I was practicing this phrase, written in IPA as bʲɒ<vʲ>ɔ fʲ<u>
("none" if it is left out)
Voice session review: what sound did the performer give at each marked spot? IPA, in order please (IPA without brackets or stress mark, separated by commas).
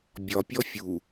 pʲ, u